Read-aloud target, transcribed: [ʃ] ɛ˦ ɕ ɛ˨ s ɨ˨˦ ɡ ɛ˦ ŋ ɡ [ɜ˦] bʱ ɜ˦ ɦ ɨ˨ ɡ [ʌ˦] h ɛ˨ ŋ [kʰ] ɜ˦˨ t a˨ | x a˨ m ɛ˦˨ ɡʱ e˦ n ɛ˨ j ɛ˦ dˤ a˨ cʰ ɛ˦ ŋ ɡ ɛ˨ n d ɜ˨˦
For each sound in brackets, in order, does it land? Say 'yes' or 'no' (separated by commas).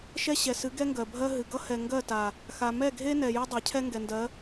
yes, no, yes, no